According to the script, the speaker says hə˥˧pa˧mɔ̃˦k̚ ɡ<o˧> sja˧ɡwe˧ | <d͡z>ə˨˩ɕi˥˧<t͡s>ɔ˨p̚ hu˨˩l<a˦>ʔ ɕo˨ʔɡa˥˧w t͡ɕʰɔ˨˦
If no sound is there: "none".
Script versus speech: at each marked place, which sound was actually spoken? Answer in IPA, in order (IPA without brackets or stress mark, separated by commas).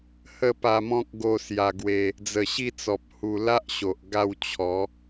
o˧, d͡z, t͡s, a˦